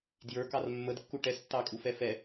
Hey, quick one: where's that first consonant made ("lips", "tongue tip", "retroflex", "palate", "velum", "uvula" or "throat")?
tongue tip